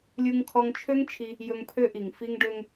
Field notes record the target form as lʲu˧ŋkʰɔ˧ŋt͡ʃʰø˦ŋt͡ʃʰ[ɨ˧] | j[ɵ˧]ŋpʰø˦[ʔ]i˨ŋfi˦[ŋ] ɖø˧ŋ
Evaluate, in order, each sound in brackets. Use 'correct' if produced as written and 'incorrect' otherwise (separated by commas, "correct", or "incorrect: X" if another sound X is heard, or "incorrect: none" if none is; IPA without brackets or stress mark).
incorrect: i˧, correct, correct, correct